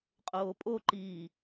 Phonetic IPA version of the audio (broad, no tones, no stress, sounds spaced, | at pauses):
qʼ oː pʼ o ǃ iː